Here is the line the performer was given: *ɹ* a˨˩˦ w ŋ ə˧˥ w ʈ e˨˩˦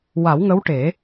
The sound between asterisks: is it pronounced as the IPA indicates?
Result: no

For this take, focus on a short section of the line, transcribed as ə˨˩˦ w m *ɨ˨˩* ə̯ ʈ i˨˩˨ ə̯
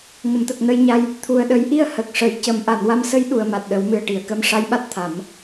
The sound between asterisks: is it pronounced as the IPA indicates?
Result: yes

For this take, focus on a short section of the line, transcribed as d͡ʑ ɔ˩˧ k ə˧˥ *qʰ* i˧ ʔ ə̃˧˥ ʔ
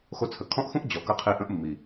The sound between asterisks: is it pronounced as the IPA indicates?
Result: yes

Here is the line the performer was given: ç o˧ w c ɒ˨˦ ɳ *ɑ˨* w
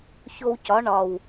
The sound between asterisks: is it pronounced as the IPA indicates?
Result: no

